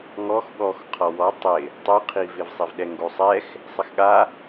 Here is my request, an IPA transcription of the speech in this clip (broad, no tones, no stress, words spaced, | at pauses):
ŋɔx ɠɔx qʰɔwɔ tˤɪ | tˤuqʰivɪvsˤiv ɗɛŋɡosˤɛx | sˤɪxɠa